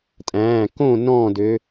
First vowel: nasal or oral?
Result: nasal